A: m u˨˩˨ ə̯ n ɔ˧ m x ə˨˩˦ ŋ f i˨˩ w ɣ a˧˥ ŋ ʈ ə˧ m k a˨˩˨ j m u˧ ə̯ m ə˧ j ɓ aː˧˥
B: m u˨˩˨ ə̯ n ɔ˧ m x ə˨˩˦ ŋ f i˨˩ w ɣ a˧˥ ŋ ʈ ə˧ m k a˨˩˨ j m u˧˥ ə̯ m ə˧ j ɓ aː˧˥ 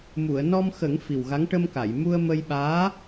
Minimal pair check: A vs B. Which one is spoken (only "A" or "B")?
A